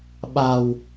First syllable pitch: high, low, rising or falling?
low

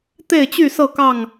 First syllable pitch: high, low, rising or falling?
falling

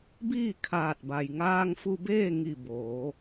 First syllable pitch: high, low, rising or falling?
falling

